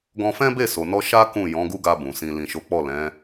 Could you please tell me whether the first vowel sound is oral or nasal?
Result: nasal